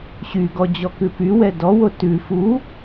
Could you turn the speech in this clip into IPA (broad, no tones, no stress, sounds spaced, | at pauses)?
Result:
ɕ y ɡ ɔ d͡ʑ ɔ k ʉ p y w ɛ d ɔ w o t ʉ f u